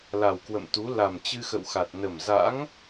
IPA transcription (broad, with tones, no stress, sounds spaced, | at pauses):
l a˨˩ w k w ə̰˧˨ m t̪ u˨˦ l a˨˩ m t͡ɕ ɨ˧ x ə̰˧˨ w x a˨˩ t̚ n ə˨˩ m z a̰˧˥ ŋ